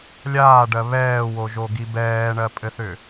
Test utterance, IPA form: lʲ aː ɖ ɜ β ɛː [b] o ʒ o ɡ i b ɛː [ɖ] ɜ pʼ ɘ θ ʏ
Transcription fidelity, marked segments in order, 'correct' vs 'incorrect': incorrect, incorrect

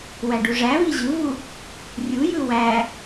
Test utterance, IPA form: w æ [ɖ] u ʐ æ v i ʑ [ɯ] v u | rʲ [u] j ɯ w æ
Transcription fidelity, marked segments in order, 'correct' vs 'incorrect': correct, correct, correct

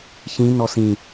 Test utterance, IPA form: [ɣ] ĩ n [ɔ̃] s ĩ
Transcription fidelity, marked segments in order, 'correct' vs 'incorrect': incorrect, incorrect

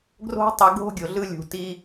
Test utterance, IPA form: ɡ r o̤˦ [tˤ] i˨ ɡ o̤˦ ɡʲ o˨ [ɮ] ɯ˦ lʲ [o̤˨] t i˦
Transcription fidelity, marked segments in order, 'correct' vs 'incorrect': correct, correct, incorrect

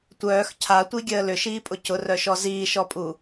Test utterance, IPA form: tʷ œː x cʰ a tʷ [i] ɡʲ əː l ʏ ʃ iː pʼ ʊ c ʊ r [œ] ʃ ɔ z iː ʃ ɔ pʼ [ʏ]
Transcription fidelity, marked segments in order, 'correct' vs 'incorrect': correct, correct, incorrect

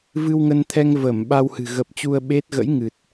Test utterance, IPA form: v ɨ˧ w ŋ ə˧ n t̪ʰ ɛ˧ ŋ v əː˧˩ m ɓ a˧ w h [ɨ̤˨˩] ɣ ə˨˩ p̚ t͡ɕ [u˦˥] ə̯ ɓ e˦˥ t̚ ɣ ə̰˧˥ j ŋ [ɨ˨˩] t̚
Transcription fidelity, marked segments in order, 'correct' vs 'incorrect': correct, incorrect, correct

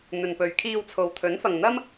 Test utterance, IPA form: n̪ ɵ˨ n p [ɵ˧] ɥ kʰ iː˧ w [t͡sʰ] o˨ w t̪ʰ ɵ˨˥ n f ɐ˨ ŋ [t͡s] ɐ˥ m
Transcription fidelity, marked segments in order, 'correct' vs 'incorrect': incorrect, correct, incorrect

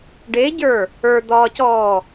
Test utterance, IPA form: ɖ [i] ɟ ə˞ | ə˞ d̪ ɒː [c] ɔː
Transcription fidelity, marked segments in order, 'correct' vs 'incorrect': incorrect, correct

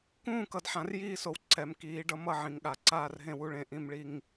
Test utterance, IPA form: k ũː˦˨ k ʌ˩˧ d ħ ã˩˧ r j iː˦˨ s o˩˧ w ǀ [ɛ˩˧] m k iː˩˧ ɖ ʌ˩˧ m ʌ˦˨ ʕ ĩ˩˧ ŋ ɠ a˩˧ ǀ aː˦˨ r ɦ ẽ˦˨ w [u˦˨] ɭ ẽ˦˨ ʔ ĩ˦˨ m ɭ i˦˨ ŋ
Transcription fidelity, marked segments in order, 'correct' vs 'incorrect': correct, correct

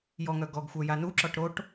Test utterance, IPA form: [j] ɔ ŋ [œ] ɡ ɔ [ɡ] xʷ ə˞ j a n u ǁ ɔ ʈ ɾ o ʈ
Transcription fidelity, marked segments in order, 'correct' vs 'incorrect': correct, correct, correct

